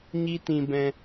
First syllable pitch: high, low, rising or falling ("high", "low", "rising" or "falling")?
high